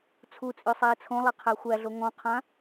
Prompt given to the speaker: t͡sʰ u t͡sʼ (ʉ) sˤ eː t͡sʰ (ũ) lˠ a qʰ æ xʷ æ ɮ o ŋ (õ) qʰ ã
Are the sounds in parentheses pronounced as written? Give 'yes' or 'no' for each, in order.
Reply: yes, no, no

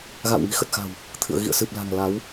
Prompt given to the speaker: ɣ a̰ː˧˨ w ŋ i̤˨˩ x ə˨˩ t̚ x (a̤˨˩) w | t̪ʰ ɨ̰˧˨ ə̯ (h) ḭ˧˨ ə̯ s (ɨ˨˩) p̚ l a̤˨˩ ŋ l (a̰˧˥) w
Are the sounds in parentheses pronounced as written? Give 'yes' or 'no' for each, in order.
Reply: yes, no, yes, no

